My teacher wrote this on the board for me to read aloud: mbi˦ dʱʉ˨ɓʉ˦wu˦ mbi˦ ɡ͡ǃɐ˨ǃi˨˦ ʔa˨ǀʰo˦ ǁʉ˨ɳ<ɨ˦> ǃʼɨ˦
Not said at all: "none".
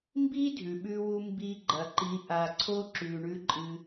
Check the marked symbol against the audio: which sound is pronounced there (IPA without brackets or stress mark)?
ʉ˦